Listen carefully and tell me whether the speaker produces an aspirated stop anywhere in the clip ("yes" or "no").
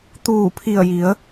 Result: yes